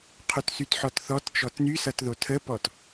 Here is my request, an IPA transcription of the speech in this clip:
qʰ ɵ t s y t ħ ɔ t θ ɔ t t͡ʃ ɔ t n y s ʌ t ð o tʰ ə p ɔ t

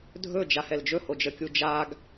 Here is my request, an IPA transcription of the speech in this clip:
dʱ ɵ d͡ʒ a h ɛ l d͡ʒ ɵ h o d͡ʒ ə kʲ u d͡ʒ a ɡ

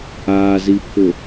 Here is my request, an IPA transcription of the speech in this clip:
aː z i pʰ ʊ

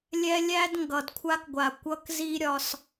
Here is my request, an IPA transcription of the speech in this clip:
lʲ ɛ˧ lʲ æ˦ d ŋ ɡ ʌ˨ d kʷʰ a˦ k ɡʷ a˨ kʷ ʌ˧ k z i˦ ɾʲ ɒ˧ s

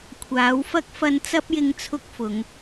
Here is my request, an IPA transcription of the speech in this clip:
kʷʰ aː˨˧ w f ɐ˥ k̚ f ɐ˧ n t͡s ɐ˥ p̚ j ɪ˧ ŋ t͡sʰ ʊ˧ k̚ f ʊ˨˧ ŋ

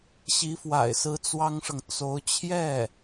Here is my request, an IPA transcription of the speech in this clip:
ɕ i˧˥ f w a̰˨˩ ɪ̯ s ɹ̩˧˥ t͡s w ɑ˥ ŋ ʂ ɤ˨ ŋ t͡s o˧˥ ʊ̯ t͡ɕʰ j ɛ˥˩

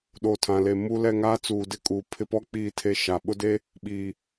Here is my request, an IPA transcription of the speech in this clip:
ɗ o˨ tʰ ã˨ l e˨ m uː˦ l ɛ˦˨ ŋ aː˦ t͡s uː˨ d ɪ˦ kʼ uː˨ pʰ ɪ˦ p ɔ˦ k͡p iː˦ tʰ e˦ ʃ a˨ ɓ ʊ˦ d e˦ | ɓ i˨

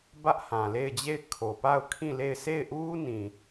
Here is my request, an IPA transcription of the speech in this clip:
b ä˦ ʔ h ã˨ l e˦˨ ɪ̯ d͡ʑ e˦˨ ɪ̯ kʰ o˨ p a˦˨ ʊ̯ kʰ ĩ˦˨ l e˦˨ ɪ̯ s e˦˨ ɪ̯ ʔ u˦ n ĩ˨

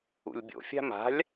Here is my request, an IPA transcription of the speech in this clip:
ṵ lʲ bʲ o̰ fʲ a̤ m a̤ lʲ

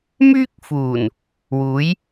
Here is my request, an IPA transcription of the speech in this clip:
m yː˥ k̚ f uː˨˩ n | w uː˨˥ j

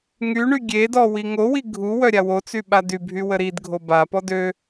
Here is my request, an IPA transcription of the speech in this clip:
ŋ y ɳ y ɡʲ e d ɔ w i ŋ o w i ɡʱ u w œ ɾʲ a w o t͡s y ɓ a d y bʱ y w ə ɾ i d ɡʱ o b a p ɔ d ø

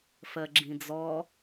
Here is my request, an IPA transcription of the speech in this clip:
f ɜ ɡ͡ǁ ĩ d͡z ɔ

